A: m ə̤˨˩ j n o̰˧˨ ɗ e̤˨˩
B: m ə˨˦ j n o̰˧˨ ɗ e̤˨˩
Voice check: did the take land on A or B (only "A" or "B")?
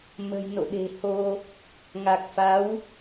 A